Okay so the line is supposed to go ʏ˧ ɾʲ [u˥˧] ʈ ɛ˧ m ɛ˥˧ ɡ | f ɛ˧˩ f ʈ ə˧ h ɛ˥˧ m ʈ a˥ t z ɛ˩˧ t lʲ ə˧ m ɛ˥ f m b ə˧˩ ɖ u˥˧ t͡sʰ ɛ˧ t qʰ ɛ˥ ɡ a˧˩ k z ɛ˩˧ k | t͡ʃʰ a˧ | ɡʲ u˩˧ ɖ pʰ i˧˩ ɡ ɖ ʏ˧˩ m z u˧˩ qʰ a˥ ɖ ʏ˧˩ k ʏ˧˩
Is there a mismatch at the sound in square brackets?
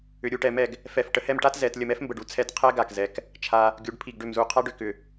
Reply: no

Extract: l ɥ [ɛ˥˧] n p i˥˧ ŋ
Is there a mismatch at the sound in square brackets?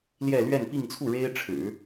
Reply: no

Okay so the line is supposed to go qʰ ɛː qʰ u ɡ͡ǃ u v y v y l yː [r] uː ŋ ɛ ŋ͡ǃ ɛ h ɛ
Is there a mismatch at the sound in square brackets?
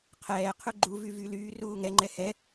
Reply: no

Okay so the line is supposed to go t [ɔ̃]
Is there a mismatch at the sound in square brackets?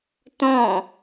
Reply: no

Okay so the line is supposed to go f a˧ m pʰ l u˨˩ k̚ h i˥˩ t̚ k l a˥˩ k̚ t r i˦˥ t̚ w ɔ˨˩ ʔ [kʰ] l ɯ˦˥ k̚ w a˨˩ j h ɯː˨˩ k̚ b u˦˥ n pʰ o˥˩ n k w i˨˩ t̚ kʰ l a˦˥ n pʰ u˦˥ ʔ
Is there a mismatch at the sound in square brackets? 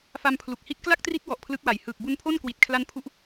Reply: yes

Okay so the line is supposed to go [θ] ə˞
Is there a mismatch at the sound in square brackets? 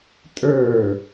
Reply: yes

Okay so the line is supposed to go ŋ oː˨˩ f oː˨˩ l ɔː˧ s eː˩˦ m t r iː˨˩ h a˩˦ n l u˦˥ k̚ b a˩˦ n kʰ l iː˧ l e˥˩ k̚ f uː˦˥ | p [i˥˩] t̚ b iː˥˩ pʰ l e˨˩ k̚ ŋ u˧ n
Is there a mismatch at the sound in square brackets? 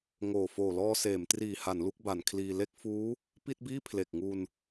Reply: no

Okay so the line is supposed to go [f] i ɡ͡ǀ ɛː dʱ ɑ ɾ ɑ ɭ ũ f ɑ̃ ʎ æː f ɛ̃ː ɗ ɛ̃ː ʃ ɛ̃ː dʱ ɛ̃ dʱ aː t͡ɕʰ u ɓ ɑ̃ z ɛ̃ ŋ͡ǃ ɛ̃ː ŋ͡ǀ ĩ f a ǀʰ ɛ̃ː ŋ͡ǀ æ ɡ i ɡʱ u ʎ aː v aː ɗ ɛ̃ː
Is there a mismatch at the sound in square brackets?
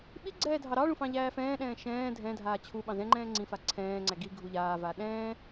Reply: yes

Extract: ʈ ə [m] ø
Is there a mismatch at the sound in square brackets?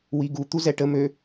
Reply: no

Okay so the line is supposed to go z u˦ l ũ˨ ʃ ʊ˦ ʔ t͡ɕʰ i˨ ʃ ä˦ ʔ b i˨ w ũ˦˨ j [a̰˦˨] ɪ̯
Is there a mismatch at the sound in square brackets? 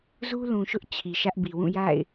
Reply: no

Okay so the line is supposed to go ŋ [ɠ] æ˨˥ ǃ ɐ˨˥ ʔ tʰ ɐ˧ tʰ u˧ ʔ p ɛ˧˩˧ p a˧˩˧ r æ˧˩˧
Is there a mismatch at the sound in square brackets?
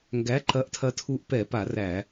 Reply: yes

